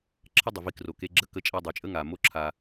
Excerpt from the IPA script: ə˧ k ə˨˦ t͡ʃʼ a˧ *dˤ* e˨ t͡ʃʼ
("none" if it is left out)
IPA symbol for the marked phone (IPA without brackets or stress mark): dˤ